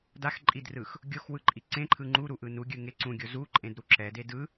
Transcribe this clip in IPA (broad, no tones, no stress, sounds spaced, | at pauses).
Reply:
d a x ǃʼ i d r ɯ x | ɡʲ o x w ɯ ǃʼ i ǀ ẽ ǃʰ ɯ ŋ͡ǃ u ɾ u ʔ ɯ n u ɡʲ ɯ ŋ e ǀ ũ ɡʲ o z u ǃʼ ẽ d ɾ u ǁ ɛ d e d ɯ